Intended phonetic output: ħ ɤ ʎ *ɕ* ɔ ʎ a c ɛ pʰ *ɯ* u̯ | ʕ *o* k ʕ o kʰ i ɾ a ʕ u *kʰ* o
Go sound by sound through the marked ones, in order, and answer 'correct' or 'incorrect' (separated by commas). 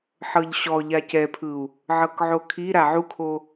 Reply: correct, correct, incorrect, correct